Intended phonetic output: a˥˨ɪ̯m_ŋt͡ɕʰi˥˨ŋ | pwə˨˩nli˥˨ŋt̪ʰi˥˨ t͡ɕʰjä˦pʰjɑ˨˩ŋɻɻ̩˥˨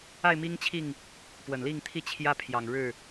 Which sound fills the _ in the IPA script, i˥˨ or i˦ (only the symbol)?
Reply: i˦